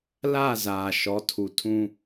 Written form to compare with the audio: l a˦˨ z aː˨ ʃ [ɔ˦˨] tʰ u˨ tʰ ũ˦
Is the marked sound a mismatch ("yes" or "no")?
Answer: yes